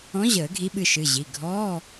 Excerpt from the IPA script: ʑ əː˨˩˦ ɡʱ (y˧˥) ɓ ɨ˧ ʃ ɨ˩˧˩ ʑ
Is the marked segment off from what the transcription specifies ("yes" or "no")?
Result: yes